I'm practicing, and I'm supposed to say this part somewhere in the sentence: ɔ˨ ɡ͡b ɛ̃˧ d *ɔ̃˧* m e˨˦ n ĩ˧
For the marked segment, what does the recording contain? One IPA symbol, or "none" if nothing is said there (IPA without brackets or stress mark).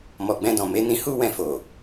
ɔ̃˨